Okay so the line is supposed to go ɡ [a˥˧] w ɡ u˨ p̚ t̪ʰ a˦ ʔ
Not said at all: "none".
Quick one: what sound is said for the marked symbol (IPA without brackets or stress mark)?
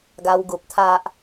a˧